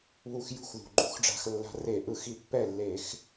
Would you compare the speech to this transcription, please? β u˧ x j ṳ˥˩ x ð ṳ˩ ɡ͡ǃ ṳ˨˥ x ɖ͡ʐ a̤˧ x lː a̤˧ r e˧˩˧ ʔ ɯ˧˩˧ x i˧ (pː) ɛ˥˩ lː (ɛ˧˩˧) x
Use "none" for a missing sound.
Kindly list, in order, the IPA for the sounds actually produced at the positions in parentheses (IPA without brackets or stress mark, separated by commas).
pː, e˧˩˧